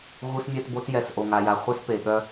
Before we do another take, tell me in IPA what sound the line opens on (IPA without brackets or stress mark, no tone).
ɣ